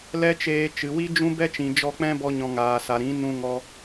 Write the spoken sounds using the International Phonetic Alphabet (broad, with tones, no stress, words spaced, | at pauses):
lɛ˦t͡ʃeː˧t͡ʃɨ˨ wi˦d͡ʒũ˦bɛ˦t͡ʃĩ˨ d͡ʒɔ˧k͡pɛ̃˦bɔ˧ɲɔ̃˨ ŋaː˨sa˨ɾĩ˨˦ nũ˧ŋɔ˧